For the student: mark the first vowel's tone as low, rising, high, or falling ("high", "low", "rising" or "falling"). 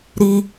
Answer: high